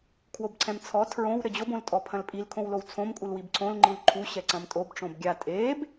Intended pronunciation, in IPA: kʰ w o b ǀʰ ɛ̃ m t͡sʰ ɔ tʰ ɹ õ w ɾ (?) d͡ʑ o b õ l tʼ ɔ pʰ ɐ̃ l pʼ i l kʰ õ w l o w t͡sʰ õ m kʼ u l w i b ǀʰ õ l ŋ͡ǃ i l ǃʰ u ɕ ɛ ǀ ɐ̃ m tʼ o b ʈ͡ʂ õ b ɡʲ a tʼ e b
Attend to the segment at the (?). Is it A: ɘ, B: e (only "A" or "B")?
A